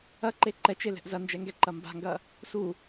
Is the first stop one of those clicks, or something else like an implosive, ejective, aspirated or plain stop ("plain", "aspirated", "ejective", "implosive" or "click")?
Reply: click